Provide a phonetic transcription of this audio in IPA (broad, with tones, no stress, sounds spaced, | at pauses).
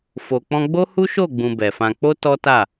f o˨ k͡p ɔ̃˧ ɡ͡b o˦ h u˦ ʃ o˦˨ ɡ͡b ũ˧ b ɛ˨ f ã˧ k͡p o˦ t ɔ˦ t a˦˨